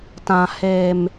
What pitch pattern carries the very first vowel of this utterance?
low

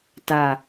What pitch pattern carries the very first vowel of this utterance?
low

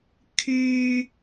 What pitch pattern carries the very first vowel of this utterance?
high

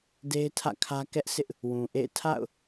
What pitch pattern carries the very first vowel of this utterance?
high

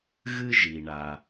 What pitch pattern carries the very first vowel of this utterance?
high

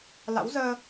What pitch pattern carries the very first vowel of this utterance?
rising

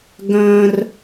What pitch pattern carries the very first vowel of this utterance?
high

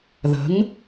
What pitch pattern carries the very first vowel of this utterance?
rising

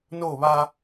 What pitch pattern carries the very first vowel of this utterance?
falling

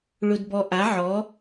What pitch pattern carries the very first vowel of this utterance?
high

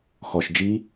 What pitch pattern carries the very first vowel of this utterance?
low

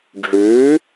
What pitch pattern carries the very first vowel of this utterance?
rising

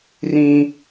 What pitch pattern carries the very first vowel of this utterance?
high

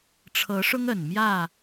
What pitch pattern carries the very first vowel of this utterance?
rising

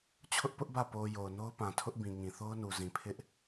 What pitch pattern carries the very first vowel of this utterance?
high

